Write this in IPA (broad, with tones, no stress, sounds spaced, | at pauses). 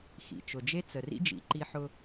x ḭ˨ t͡ʃ ʊ˨ d͡ʒ e˦ t͡s ə˨ r ḭ˦ d͡ʒ ḭ˨ ǃ i˦ ħ ʊ˦